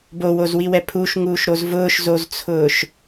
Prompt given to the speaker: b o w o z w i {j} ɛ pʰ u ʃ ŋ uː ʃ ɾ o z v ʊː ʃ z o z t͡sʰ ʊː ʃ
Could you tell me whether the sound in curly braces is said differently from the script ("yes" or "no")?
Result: yes